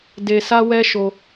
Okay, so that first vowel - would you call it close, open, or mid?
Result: mid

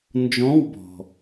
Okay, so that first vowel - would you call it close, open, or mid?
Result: mid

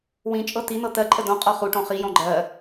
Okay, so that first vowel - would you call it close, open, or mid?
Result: close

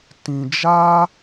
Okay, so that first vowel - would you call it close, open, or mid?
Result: close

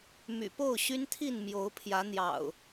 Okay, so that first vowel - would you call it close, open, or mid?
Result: close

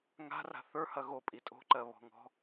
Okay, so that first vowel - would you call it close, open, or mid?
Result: open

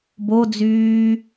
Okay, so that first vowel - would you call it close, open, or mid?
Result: mid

